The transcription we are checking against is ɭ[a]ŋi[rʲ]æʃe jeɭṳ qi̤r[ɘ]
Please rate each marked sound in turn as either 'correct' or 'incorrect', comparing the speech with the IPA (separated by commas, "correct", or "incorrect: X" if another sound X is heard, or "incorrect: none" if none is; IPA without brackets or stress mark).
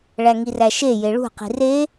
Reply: incorrect: æ, incorrect: r, incorrect: e